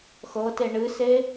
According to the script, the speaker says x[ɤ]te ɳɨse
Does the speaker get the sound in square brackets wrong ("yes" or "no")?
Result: no